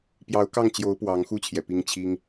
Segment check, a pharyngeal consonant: absent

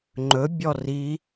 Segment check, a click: present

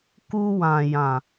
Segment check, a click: absent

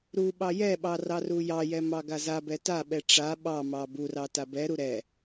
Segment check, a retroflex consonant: present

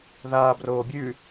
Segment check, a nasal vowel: absent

